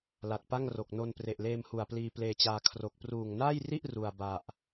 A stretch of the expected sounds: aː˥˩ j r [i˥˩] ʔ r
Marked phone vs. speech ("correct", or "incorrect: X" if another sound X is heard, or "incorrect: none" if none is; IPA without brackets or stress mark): correct